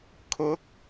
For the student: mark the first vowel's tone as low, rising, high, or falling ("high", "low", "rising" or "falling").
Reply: rising